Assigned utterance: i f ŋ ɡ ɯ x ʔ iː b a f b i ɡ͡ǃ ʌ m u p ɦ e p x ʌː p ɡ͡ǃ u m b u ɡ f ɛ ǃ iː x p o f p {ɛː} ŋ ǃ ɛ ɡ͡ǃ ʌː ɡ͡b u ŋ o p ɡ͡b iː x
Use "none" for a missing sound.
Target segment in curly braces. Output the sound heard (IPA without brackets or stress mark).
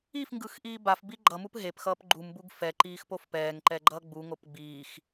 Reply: ɛː